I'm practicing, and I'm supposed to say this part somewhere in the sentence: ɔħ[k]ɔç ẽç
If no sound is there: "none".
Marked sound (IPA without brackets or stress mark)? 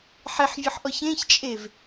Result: ʔ